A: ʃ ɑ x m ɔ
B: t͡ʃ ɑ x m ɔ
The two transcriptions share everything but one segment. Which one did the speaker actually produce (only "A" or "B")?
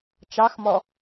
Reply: B